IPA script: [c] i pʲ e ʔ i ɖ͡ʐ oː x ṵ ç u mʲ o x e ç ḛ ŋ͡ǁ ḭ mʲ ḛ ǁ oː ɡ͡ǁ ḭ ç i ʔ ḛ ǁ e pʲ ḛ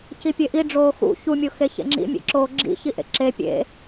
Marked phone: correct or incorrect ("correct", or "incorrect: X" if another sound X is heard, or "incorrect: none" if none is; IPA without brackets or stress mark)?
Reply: correct